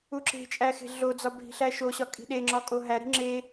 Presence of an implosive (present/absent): present